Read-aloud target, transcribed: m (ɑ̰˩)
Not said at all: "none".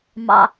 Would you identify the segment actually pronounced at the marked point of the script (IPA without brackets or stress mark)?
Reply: ɑ̰˩